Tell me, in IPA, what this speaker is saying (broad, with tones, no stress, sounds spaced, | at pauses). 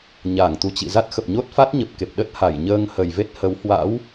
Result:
ɲ a˧˩ ŋ t̪ u˨˩ t͡ɕ ḭ˧˨ z a˦˥ t̚ x ə˨˩ p̚ ɲ o˦˥ t̚ f a˦˥ t̚ ɲ ə˨˩ p̚ k e˨˩ p̚ ɗ ə˦˥ t̚ h a˧˩ j ɲ əː˧ ŋ h ə˨˩ j v e˦˥ t̚ h ə˨˦ w h w a̰˧˥ w